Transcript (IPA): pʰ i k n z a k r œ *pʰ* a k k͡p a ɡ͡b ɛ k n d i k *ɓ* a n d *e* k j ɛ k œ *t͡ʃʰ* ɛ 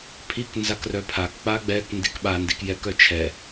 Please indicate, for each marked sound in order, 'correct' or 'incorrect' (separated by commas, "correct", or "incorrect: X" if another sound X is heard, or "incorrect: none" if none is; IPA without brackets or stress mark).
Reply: correct, correct, incorrect: i, correct